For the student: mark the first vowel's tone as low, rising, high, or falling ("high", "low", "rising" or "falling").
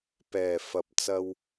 low